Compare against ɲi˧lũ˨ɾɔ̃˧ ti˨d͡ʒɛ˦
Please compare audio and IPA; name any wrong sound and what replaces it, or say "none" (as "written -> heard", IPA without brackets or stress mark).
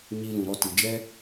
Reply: ɔ̃˧ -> ɔ˧